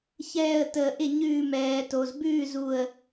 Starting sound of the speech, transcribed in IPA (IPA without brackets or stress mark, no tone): ç